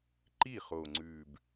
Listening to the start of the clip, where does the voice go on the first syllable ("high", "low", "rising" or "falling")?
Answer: falling